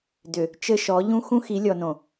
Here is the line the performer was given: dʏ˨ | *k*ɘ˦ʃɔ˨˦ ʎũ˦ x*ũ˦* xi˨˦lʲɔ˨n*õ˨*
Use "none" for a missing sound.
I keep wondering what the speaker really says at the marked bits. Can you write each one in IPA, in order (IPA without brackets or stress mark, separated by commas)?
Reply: t͡ʃ, ũ˦, õ˨